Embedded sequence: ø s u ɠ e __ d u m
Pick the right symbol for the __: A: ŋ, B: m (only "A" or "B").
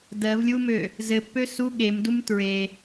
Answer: B